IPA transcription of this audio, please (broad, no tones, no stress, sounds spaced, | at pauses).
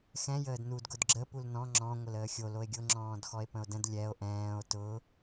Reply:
x ɛ̃ j əː d n u d ɡ ʊ d ɡ͡ǁ ə p u l n ɔ̃ ŋ͡ǁ ɔ̃ ŋʷ ə l əː xʲ o l o e̯ ɡʲ ʊ ŋ͡ǁ ɔ̃ː d x ɔ e̯ p ə̃ o̯ d ə̃ d lʲ ɛ o̯ ʔ ɛ̃ː o̯ t ʊ